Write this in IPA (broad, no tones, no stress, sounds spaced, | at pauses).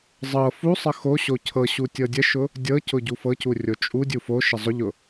zˤ ɤ f u sˤ ə x o ɕ o cʰ ɤ ɕ u tʲ ɤ dʲ ə ʃ ʊ | dʲ ɤ c ʊ ɟ u f ɤ c u rʲ o t͡ʃʼ u dʲ u f o ʃ ə zˤ ʊ ʎ ʊ